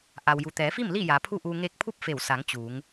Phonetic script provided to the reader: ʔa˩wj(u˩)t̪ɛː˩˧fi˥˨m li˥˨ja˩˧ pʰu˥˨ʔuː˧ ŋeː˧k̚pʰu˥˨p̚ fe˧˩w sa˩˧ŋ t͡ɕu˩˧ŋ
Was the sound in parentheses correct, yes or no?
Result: yes